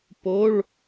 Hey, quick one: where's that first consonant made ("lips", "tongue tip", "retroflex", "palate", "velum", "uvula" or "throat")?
lips